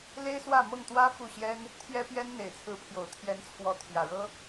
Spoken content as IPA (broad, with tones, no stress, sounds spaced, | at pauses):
l e˥ ɪ̯ s w ä˥˧ m ɤ˥˩ ŋ t̪ w ä˥ f u˥˩ ɕ j ɛ˥ n | t̪ʰ j ɛ˥ p j ɛ˥ n n̪ e˨˩ ɪ̯ t͡sʰ ɹ̩˧˥ pʰ j o˨˩ ʊ̯ t̪ʰ j ɛ˧˥ n t͡sʰ w ɔ˧˥ t̪ʰ j ä˨˩ ɻ ɤ˥